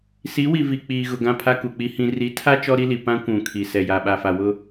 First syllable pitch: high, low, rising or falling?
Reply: rising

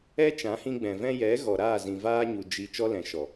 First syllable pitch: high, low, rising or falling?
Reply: high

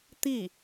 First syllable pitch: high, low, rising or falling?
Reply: falling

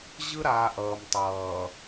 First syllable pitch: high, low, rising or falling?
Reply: high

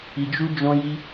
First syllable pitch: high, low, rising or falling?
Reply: low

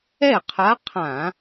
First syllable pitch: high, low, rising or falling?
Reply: falling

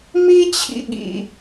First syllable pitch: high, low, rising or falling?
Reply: high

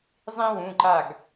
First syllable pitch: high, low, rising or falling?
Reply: high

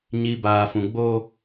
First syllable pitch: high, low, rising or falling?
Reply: low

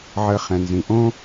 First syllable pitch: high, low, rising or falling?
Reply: low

